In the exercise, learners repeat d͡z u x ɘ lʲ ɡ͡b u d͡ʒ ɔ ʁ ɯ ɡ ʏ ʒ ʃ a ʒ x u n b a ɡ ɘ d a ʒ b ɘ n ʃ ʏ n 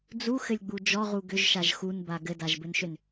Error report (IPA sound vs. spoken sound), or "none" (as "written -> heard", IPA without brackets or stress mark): ɯ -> u